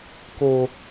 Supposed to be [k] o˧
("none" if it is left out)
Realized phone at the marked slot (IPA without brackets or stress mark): k